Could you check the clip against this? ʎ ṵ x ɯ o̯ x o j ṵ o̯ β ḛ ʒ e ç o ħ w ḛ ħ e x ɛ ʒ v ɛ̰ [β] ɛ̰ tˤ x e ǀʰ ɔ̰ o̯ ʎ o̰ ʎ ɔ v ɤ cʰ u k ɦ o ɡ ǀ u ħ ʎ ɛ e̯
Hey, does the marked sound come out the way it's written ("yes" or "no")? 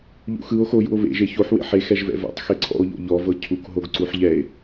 no